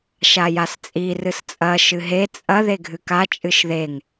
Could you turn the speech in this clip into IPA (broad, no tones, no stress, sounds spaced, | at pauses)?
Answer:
ʃ a j a s t͡sʼ i r ɨ s t͡sʼ ɐ ʃ ɨ ɦ e t͡sʼ ɐ ð e ɡʱ ɨ k a t͡ʃʼ ɨ ʃ ð e ŋ